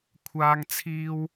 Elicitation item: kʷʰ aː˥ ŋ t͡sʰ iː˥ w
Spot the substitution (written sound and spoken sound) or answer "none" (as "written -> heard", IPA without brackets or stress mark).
none